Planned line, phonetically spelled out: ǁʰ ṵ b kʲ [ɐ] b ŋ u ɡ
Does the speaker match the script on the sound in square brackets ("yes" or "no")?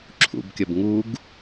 yes